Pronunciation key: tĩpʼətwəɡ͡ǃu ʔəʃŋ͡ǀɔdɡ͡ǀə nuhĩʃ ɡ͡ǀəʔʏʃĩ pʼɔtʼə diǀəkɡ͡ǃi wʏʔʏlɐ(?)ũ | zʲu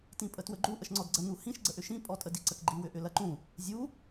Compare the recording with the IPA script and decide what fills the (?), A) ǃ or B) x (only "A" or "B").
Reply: A